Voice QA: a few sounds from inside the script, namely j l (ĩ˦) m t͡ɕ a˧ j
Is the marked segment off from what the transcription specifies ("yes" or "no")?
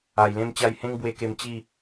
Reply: yes